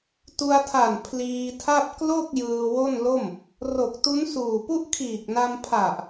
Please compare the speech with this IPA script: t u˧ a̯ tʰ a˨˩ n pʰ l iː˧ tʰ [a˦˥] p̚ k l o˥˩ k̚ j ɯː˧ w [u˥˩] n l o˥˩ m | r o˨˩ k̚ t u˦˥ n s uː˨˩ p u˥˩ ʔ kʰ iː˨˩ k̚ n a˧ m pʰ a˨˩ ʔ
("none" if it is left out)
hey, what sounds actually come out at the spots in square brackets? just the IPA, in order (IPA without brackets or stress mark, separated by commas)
a˥˩, o˥˩